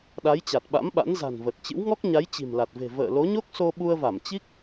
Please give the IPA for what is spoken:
ɗa˨˦jt͡ɕa˨˩t̚ɓa̰˧˥mɓa̰˧˥n za̤˨˩nvə˨˩t̚t͡ɕɨ̰˧˥wŋɔ˦˥k̚ ɲa˨˦jt͡ɕi̤˨˩mla˨˩t̚ve̤˨˩ və̰ː˧˨lo˨˦ɲo˦˥k̚ so˧ɓu˧ə̯va˧˩m t͡ɕi˦˥k̚

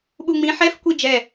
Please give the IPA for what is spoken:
ɓuŋ͡mĩ ħɛf kʷid͡ʒɛ

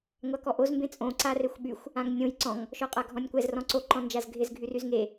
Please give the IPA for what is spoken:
ŋʷakɔʔoz mbẽt͡sʼõ ǀarexʷɓyxʷ | ãŋnʲõj ǀɔ̃ŋ | ʃɔqʼaɡʱɔ̃nʲkʷɛz rɔ̃ǀo ǃɔ̃nd͡ʒazɡʱɪz ɡʱyryzŋe

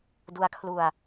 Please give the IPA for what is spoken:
du˦˥a̯kʰlu˧a̯

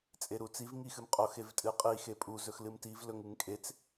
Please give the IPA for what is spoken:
t͡sʼeɾut͡siv ŋixɨmqʼox evtʼɨqʼi xepʼu zɵxlɨmtiv lɵŋɨŋkʼet͡s

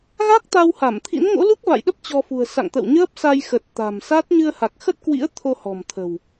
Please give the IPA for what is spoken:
ɣa˦˥k̚t̪a˧wha˧˩mt̪ʰḭ˧˥n ŋo̰˧˥lu˦˥k̚va̰˧˨jɗə˦˥p̚ t͡ɕɔ˧fṳ˨˩ə̯ sa̰˧˨ŋ t̪ə̰˧˨wɲəː˦˥p̚ sa˧jxə˨˩t̚ t̪a̤˨˩msa˦˥t̚ ɲɨ˧ə̯ha˨˩k̚xə˦˥t̚kwḭ˧˥ə̯ t̪ʰo˧hɔ̤˨˩m t̪ʰə̤˨˩w

